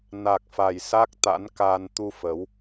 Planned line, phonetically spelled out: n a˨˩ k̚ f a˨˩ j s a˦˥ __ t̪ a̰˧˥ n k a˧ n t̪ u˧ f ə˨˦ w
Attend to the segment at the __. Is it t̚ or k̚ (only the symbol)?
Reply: k̚